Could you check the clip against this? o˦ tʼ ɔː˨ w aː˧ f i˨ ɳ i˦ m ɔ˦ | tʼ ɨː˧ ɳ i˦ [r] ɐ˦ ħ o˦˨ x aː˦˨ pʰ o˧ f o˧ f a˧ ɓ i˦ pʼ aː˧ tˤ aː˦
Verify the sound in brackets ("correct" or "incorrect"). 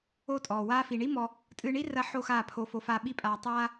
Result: correct